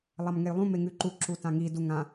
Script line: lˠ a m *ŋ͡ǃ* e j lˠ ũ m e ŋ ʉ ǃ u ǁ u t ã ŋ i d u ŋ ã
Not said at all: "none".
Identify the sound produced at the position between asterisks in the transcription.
ŋ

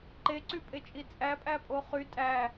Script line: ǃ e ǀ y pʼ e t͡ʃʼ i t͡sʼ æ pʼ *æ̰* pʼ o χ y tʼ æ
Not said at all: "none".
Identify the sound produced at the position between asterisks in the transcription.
æ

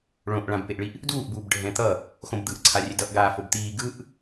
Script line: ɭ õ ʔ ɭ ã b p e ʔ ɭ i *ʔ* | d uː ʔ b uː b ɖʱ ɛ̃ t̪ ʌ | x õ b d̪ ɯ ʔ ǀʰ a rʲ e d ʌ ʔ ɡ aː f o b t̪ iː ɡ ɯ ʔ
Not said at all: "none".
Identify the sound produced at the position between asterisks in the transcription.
ʔ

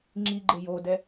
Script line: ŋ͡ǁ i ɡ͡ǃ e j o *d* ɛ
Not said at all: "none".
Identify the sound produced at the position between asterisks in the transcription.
d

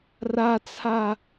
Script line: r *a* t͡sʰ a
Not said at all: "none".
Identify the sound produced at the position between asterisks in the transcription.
a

